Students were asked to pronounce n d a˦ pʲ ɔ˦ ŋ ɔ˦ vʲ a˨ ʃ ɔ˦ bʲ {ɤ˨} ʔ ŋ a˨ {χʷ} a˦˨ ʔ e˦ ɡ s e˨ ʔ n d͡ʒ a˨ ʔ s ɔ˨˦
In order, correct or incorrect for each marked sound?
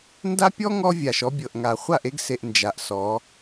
correct, correct

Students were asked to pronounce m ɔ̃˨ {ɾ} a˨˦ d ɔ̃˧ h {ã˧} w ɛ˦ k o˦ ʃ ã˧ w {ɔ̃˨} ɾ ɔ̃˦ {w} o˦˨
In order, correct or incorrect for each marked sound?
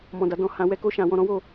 incorrect: d, correct, incorrect: ɔ̃˧, correct

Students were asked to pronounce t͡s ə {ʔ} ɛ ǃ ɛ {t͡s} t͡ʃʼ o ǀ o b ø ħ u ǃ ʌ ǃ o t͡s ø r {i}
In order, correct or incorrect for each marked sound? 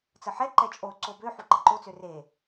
incorrect: ħ, incorrect: none, incorrect: e

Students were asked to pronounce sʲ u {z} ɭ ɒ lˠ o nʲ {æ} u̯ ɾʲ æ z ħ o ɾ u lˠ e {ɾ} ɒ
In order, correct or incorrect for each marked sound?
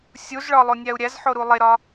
correct, correct, correct

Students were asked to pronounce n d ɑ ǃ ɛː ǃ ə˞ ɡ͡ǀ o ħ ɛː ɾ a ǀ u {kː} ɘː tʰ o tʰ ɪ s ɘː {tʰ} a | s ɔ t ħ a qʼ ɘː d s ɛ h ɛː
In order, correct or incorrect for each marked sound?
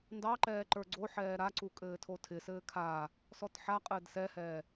incorrect: kʼ, incorrect: kʰ

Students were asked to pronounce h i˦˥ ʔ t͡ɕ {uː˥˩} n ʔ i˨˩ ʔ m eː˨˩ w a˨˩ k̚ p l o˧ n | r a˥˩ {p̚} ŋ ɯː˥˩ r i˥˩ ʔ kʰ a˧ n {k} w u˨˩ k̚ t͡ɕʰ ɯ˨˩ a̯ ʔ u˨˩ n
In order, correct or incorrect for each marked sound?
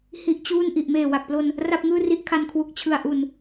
correct, correct, incorrect: kʰ

